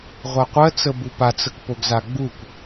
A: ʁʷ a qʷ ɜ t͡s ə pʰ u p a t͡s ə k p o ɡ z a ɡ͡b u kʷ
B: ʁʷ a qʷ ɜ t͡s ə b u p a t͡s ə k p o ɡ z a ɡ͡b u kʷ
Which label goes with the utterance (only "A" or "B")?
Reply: B